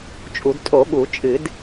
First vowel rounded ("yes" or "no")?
yes